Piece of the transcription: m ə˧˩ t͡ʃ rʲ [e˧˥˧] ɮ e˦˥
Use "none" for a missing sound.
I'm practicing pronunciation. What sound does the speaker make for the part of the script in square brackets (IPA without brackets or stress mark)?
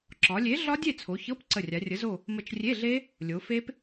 e˧˥˧